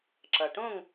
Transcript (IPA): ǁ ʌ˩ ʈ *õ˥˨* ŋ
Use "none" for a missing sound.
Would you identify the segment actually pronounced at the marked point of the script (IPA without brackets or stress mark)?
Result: õ˥˨